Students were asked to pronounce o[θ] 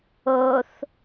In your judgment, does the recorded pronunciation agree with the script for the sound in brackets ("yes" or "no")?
yes